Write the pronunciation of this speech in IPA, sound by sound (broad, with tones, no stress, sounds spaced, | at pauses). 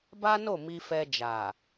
b a˦ n o˦˨ m i˧ f ɛ˧ d͡ʒ a˨